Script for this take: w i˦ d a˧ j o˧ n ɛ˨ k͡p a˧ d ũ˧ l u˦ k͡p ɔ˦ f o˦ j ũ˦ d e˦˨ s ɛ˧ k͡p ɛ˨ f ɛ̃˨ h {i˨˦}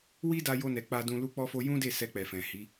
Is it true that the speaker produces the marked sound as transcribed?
yes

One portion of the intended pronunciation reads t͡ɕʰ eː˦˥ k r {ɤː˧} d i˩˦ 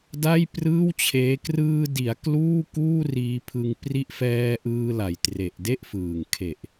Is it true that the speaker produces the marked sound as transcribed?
no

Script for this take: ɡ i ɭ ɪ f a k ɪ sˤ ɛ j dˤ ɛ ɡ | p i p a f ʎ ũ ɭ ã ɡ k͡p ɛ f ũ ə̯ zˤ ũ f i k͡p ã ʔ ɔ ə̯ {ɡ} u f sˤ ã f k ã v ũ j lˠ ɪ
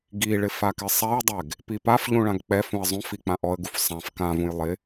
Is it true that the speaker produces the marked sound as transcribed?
yes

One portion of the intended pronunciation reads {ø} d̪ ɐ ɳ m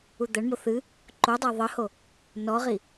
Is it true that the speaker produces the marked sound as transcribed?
no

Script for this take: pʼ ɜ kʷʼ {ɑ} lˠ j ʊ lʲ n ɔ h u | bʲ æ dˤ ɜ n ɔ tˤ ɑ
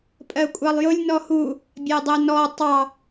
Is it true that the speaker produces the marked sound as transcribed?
yes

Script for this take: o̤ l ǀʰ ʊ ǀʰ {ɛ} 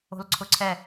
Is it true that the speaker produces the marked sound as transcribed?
yes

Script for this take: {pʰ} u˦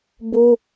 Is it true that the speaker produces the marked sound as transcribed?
no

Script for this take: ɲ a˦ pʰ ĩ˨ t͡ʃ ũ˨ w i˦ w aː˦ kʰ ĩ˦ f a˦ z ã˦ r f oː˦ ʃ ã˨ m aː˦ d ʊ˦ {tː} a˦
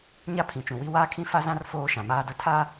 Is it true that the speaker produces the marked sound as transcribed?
no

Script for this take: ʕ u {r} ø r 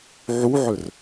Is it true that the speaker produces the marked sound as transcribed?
no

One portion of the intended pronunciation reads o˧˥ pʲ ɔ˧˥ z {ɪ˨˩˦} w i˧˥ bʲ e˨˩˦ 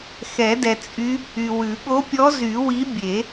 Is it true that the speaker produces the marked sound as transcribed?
no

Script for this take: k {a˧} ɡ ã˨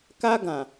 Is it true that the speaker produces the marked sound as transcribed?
yes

